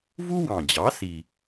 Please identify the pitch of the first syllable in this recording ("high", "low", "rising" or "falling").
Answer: high